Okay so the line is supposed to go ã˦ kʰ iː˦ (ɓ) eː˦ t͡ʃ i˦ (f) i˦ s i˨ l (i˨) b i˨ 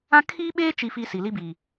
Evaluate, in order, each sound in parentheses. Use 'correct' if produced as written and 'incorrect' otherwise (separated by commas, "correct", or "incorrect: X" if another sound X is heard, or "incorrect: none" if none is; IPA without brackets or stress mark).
correct, correct, incorrect: i˦